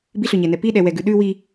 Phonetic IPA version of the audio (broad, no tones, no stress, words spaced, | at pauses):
biɬøɲɛnɛ piɗɛwɛɡʉ ɗʉ wi